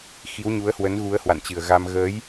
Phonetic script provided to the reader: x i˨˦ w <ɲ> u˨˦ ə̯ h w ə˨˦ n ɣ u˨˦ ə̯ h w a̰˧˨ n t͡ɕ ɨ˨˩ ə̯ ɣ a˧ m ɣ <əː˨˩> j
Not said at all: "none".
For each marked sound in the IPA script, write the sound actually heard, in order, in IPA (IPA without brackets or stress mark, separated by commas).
ɲ, əː˨˦